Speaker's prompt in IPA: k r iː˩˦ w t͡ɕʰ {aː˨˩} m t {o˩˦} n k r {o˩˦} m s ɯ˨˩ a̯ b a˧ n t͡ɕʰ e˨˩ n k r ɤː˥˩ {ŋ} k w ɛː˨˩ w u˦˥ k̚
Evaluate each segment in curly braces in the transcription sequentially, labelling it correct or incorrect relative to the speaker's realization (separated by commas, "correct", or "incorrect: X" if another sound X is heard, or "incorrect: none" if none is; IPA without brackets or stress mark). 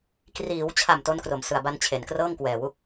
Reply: incorrect: a˨˩, incorrect: o˦˥, correct, correct